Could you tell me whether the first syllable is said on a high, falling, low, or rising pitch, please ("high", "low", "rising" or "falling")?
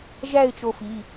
falling